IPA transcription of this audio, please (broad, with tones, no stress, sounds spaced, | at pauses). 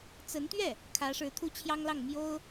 t͡s ə˧˥ n t̪ ɥ ɛ˥˩ | kʰ ä˧˥ ʂ ɻ̩˧˥ t̪ʰ u˥ t͡ɕʰ j ɑ˥ ŋ l ɑ˥˩ ŋ m j o˥ ʊ̯